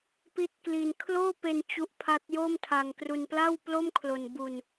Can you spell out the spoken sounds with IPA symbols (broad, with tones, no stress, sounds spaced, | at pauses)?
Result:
p i˦˥ t̚ k l i˧ n kʰ l oː˥˩ p e˧ n t͡ɕ u˦˥ ʔ pʰ a˦˥ t̚ j o˥˩ m tʰ a˧ ŋ k r u˧ n p l a˥˩ w p l o˥˩ m kʰ l o˧ n b u˧ n